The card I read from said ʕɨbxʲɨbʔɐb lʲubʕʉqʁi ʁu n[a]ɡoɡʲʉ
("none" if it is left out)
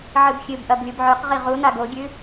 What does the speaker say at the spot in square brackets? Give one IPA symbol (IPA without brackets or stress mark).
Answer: a